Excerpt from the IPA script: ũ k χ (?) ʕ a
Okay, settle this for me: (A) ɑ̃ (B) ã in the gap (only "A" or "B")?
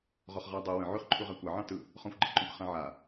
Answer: B